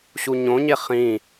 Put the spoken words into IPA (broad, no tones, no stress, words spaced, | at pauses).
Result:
ɕuɲõɲe χĩ